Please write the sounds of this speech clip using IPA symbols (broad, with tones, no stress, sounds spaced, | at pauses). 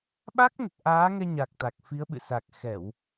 ɓ a˦˥ k̚ n ə˨˩ t̚ ʔ aː˨˦ ŋ ɛ˧ ɲ a˨˩ k̚ t̪ a˨˩ k̚ f i˨˦ ə̯ ɓ ɨ̰˧˨ s a˨˩ k̚ x ɛ˧˩˨ w